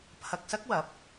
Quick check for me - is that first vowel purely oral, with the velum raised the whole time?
yes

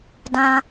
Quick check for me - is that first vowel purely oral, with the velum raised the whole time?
no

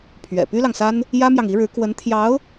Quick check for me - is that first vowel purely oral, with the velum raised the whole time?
yes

